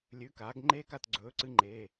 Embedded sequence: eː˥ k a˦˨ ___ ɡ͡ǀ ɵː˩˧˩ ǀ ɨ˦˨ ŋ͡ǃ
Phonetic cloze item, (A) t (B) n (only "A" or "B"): A